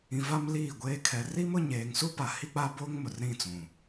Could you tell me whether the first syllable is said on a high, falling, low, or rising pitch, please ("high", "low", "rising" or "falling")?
low